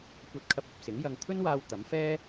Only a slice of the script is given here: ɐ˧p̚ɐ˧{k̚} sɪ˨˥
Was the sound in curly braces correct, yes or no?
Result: no